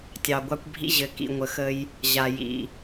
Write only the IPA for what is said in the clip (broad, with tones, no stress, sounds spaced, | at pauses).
tʲ ɑ˨ ɡʷ ɑ˦ kʷ bʱ ḭ˦ ʑ ɘ˨˦ k ḭ˦˨ ŋʷ ə˨ x ə˦ j | ʑ a˨ j ḭ˨